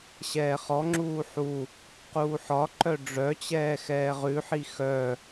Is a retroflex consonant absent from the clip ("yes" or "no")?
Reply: no